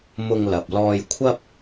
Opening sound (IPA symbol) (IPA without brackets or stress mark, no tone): m